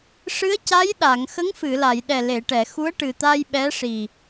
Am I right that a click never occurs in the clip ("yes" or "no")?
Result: yes